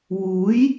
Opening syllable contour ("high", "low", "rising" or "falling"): rising